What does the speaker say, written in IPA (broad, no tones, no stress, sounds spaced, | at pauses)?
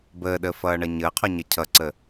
b əː ɗ əː f ʌː ɳ ʌ ɲ əː qʰ ɔ ɲ ʌ cʰ ʌ ǀ ə